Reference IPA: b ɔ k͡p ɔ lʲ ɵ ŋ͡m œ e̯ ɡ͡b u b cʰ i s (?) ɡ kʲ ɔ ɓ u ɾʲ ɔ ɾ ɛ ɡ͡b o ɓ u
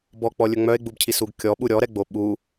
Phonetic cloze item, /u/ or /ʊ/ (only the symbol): u